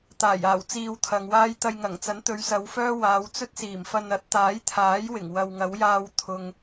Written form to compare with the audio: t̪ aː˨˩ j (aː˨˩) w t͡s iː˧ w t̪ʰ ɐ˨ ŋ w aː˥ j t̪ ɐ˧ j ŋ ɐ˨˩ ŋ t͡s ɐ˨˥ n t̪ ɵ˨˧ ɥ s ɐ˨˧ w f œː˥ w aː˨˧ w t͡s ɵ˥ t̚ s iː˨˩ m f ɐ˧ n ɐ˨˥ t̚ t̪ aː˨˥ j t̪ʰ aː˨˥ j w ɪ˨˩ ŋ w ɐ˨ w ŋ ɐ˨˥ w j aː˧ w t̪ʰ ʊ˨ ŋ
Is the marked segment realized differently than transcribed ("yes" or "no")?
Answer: no